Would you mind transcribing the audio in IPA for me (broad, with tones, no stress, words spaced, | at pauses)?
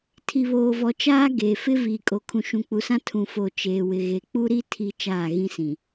tʰi˨βoː˨vɔ˨t͡ʃaː˦ ɡeː˨fɪ˦ viː˨kʼo˨kʰũ˨ ʃũ˨k͡pu˨sã˦ tʰũ˨fo˨ t͡ʃeː˨wɪ˨ ɣe˨k͡pu˦ɾi˦ tʰi˨ t͡ʃaː˦˨ɣĩ˦sĩ˨